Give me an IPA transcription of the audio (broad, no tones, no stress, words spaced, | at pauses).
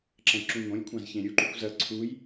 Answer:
ǁɐ̃jǁũŋõlʲkʷʰãz çẽɾʲuǃukʷ zɐ ǀʰuj